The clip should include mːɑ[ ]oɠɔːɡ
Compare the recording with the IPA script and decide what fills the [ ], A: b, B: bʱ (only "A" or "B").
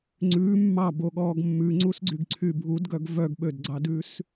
A